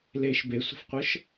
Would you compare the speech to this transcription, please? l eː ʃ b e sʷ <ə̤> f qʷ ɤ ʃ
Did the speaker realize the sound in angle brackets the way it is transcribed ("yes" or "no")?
yes